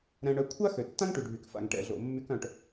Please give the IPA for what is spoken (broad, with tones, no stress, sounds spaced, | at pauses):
ɾ ɛ̃˧ ɳ œ˧ kʷʰ a˥ x ø˩ tː ã˥ ŋ ʈ y˩ ɖʱ y˩ k f a̰˩ ŋ ʈ ɛ̰˩ ɮ o̰˩ mː y˧ k œ̃˩ ʈ